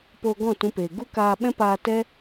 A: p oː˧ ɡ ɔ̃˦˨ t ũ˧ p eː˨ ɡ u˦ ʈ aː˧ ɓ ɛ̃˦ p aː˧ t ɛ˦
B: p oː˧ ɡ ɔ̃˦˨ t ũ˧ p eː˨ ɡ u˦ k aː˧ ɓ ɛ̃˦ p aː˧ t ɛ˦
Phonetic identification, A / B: B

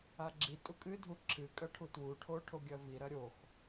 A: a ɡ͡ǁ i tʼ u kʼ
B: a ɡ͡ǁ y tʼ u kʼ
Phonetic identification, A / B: A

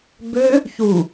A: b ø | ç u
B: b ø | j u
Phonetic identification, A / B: A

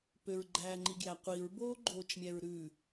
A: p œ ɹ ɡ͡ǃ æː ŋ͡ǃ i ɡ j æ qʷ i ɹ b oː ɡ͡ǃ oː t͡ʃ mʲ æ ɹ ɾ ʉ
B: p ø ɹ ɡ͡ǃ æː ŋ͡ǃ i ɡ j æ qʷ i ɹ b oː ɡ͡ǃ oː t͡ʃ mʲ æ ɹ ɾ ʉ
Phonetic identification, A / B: B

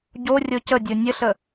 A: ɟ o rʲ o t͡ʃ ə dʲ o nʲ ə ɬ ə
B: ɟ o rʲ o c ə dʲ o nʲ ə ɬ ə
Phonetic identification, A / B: B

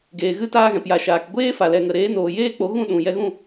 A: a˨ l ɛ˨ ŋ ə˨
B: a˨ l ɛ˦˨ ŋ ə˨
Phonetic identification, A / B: A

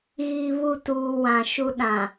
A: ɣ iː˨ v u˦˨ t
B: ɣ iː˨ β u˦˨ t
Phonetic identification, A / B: B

